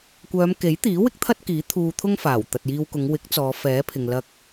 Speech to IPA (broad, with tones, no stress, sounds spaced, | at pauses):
kʷ œː˨˧ m k e˨˥ j t̪ iː˨˥ w ɪ˥ k̚ t̪ʰ ɐ˥ t̚ k iː˨˥ t̪ʰ uː˧ t̪ʰ ʊ˥ ŋ f aː˨˩ w t̪ ɐ˨ t̚ j iː˧ w k ʊ˨˧ ŋ w ɪ˨˥ k̚ t͡s ɔː˨˧ f ɛː˨˥ pʰ ɪ˨ ŋ l ɐ˧ k̚